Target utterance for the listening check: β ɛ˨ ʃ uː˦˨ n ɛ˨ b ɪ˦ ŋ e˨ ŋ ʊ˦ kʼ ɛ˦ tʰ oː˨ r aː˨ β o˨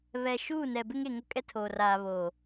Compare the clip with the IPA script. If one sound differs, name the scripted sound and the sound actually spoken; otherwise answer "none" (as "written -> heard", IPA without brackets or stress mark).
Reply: none